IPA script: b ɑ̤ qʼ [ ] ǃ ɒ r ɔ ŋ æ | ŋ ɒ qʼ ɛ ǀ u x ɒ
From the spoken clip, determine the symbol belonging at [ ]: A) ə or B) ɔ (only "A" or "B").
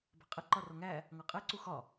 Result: A